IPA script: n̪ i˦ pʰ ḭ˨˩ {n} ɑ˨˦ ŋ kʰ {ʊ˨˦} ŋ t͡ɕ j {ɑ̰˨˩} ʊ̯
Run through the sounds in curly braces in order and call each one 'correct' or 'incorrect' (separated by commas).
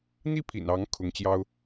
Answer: correct, correct, incorrect